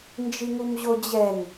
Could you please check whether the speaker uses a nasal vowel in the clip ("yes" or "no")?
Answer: no